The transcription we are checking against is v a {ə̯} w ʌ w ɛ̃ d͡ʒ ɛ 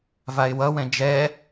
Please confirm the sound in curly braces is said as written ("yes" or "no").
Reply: no